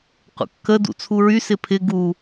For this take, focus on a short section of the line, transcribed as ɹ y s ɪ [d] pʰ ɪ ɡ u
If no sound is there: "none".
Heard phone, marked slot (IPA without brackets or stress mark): none